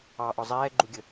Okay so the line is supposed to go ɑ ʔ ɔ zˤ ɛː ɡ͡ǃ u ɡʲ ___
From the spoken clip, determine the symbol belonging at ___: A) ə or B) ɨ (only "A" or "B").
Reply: A